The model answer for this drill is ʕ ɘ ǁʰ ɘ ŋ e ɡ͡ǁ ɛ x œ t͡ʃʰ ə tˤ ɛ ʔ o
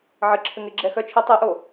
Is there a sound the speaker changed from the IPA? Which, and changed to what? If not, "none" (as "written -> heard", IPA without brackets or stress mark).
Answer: none